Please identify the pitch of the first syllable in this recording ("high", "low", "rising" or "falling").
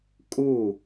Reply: falling